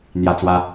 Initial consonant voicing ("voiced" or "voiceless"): voiced